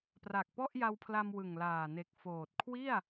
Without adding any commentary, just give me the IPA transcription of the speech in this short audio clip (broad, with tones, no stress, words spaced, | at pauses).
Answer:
pra˨˩k̚pɔ˥˩ʔ ja˧wpʰla˧m wɯ˨˩ŋlaː˨˩ne˨˩k̚ foː˨˩t̚kʰwi˥˩a̯